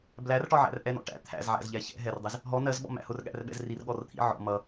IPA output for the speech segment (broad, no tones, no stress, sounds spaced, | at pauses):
b l æ r ʈ ɒ ʕ æ̰ r ʔ ɛ n ɔ̰ ʈ æ̰ t̪ʰ æ̰ z ʕ æ̰ z ʎ ɛ ç ɛ̰ ɦ ɛ r dˤ i z | ɦ ɔ n ɜ z ɓ ɔ̰ m æ̰ h ʊ r ɠ æ̰ r ɓ ɛ̰ z r i r ɠ ɔ r t̪ʰ ḭ ʕ ɔ̰ m ʌ